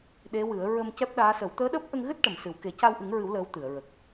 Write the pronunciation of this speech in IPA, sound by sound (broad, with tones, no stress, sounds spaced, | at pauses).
ɗ e˧˥ w ɨ˨˩˦ ə̯ ɹ ə˧ m c ɛ˦˥ p̚ ɗ aː˧˥ s ə˨˩˦ w t̪ əː˧˥ ɗ əː˦˥ p̚ ʔ ə˧ ŋ ɣ ɨ˦˥ t̚ ʈ ə˨˩˨ m s ɨ˨˩˨ w k e˨˩˦ c a˧ w ʔ ɨ˨˩˦ ŋ ɹ ɨ˨˩˦ w l əː˧˥ w t̪ ɨ˨˩˨ ə̯ ɹ ə˨˩ k̚